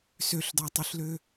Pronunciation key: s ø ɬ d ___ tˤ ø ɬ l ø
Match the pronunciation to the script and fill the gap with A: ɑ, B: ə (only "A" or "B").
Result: A